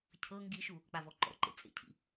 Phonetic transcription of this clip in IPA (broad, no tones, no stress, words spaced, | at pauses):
cʰɤ ŋɡiʃu | k͡pavɔǃɔ̰ǃḛ t͡sʼḛcʰḭ